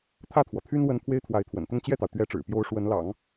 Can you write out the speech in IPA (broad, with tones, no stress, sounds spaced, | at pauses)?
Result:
t̪ʰ ä˥˩ t̪ʰ w ɔ˩ t̪ʰ y˥ n w ə˧˥ n pʰ w e˥ ɪ̯ t̪ʰ w a˧˥ ɪ̯ t̪ʰ w ə̰˨˩ n t̪ ə˥˧ n t͡ɕ j ɛ˥˩ t̪ ɑ˩ ʊ̯ t̪ ɥ ɛ˧˥ ʈ͡ʂ ɻ̩˨˩ p j o˧˥ ʊ̯ ʂ w ə˧˥ n l ɑ̰˨˩˦ ŋ